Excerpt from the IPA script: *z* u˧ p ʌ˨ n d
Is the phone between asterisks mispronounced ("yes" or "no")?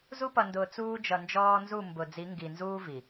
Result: no